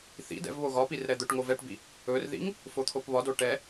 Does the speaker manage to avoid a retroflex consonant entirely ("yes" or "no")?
no